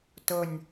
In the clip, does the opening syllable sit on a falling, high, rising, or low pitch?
low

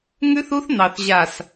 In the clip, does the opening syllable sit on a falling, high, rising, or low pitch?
high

